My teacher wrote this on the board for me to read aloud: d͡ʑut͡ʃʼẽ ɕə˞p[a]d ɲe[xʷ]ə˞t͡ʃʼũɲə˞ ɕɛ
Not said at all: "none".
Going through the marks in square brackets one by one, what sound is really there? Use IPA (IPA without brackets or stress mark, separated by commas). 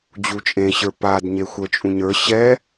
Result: a, xʷ